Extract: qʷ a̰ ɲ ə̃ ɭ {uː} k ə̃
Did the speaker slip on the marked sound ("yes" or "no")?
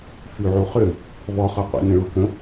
yes